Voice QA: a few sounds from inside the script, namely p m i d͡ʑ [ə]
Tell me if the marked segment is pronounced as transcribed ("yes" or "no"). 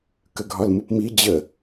yes